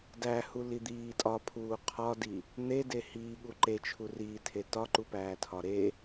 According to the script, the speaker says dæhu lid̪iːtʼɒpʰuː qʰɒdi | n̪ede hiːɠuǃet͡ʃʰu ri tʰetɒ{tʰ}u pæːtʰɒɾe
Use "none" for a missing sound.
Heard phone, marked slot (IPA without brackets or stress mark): ǃ